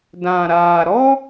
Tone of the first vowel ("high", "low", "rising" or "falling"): low